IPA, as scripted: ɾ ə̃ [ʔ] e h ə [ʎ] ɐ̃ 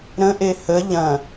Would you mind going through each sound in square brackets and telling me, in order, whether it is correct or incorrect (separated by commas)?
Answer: correct, correct